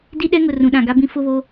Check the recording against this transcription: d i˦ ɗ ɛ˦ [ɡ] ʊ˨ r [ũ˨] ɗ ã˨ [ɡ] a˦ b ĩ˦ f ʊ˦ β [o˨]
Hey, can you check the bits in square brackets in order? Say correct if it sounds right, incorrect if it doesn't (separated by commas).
incorrect, correct, correct, incorrect